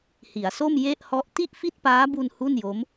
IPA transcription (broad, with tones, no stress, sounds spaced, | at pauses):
h i˩˦ a̯ s o˥˩ m j e˥˩ ʔ h ɔ˦˥ ʔ t i˥˩ ʔ f i˥˩ t̚ p aː˦˥ b u˧ n h u˥˩ n j o˦˥ m